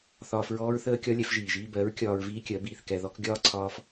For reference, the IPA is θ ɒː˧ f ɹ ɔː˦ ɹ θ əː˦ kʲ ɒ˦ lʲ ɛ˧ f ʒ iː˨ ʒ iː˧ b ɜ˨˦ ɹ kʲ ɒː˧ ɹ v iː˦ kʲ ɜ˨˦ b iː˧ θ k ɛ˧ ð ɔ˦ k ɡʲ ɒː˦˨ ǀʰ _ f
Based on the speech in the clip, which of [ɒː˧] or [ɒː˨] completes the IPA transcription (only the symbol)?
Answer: ɒː˧